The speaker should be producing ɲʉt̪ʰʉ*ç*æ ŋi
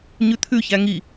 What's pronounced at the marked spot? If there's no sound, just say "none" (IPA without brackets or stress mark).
ç